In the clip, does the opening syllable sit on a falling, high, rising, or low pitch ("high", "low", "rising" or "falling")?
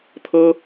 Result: high